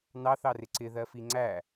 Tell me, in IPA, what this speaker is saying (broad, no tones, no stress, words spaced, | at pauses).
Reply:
nɑθɑrɪ ǀɪðɜ fiŋ͡ǀæ